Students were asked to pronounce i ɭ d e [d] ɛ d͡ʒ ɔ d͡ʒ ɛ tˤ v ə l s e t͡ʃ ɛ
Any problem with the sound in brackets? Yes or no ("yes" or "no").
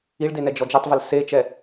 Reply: yes